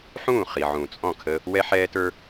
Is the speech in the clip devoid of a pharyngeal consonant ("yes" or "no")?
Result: no